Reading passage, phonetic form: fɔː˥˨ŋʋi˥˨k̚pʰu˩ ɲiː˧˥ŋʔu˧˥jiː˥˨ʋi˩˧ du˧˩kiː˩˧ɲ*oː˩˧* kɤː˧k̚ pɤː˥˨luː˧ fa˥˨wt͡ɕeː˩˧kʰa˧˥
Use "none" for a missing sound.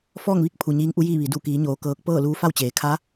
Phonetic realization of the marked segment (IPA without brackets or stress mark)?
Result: oː˩˧